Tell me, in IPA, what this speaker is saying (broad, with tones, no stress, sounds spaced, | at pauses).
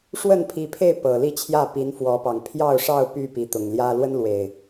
ʂ w ə˥˨ n pʰ i˨˦ pʰ e˥˨ ɪ̯ p ɤ˨˩ l i˥˨ t͡ɕʰ j ä˥˨ p i˨˦ n f w ɔ˨˦ p ɑ˨˩ ŋ pʰ j ɑ˥˨ ʊ̯ ʂ ɑ˥˨ ʊ̯ p y˥˨ p i˨˦ t̪ ʊ˨˩ ŋ l j ä˦ l w ə˦ n l w e˨˩ ɪ̯